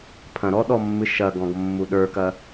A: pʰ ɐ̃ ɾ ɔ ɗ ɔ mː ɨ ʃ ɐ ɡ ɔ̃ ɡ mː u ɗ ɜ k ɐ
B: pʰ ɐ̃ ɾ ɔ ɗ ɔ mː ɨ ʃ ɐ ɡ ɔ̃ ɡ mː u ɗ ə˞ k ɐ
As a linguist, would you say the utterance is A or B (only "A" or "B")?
B